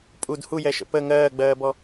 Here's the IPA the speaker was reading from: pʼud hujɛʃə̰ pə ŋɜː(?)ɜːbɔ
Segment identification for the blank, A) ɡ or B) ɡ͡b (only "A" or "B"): B